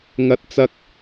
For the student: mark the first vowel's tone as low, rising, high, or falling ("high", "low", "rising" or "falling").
high